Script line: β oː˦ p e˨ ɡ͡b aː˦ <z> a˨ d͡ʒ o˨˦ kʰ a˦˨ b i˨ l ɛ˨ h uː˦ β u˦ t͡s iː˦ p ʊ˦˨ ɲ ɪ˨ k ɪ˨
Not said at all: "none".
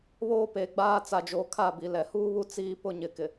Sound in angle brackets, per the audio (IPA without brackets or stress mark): t͡s